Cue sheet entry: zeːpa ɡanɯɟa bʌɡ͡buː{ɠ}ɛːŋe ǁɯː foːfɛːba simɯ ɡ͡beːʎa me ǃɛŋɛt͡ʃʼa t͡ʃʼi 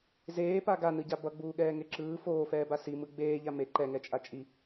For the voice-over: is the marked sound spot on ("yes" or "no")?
yes